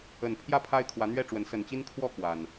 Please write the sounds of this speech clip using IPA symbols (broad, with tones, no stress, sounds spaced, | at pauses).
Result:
ə˨˩ n pʰ j ä˥˨ pʰ a˦ ɪ̯ kʰ w ä˨˦ n̪ ɥ ɛ˥˨ ʈ͡ʂ w ə˨˦ n s ə˨˩ n t͡ɕ i˦ n kʰ w ɔ˥˨ k w a˨˩ n